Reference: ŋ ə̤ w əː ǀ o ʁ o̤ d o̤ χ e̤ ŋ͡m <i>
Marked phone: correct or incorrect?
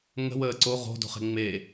incorrect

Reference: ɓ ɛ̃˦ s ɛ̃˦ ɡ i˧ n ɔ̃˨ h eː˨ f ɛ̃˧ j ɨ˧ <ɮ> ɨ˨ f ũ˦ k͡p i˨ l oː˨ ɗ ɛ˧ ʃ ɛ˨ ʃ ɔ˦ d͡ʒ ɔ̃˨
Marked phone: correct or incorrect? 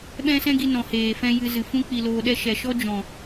incorrect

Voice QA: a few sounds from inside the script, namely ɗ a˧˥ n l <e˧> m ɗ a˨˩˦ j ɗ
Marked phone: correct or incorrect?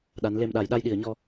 correct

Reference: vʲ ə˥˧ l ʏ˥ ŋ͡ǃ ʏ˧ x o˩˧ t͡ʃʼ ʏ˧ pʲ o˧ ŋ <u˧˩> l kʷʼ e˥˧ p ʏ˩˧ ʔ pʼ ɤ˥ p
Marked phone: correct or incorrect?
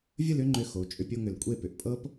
incorrect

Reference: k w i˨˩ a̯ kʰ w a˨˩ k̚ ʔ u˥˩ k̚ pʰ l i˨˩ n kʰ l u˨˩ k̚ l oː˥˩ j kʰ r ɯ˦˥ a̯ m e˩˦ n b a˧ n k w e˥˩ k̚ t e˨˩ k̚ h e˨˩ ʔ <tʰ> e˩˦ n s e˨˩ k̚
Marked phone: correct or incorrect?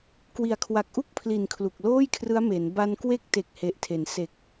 correct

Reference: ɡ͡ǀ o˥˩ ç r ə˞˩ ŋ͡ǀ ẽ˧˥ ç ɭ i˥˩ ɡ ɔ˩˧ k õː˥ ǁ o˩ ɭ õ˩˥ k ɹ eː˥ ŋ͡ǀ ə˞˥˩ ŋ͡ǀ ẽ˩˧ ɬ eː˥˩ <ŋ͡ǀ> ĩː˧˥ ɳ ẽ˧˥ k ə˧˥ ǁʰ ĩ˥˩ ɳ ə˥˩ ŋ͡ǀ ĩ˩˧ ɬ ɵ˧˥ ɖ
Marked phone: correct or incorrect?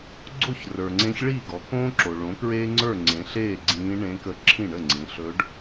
incorrect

